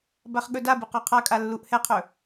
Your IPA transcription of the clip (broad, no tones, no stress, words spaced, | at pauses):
baχɠɵdabɯq ɔqʰakʼa lːuʔhɛqʰɵ